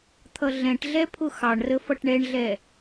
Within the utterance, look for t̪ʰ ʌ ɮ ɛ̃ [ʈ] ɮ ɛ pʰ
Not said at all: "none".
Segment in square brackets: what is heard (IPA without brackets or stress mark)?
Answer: ʈ